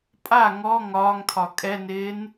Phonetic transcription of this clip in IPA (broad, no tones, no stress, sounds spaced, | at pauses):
pʼ a ŋ ɔ ŋ ɒː ŋ tʰ ɒ kʼ ɛ n ɪː n